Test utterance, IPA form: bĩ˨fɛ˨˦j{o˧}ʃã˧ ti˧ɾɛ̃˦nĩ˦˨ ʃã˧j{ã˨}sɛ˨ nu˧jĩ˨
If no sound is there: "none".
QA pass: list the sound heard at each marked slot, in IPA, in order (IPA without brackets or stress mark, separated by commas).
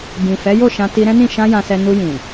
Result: o˦˨, ã˨